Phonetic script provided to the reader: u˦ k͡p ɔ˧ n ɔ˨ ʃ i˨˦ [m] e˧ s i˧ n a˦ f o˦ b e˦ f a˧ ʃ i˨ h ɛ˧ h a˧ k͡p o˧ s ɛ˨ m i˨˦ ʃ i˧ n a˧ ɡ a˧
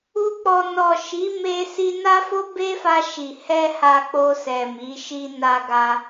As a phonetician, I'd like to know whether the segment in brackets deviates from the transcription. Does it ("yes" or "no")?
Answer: no